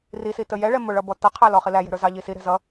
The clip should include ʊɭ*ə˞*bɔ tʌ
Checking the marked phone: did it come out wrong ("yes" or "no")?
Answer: yes